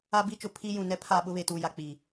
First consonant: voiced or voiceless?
voiced